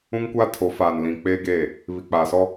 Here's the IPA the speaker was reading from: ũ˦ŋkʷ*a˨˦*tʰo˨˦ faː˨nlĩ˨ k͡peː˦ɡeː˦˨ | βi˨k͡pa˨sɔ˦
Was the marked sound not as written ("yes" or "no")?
yes